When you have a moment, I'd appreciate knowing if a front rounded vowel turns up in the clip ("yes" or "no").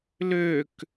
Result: yes